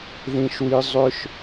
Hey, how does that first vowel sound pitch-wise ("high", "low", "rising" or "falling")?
high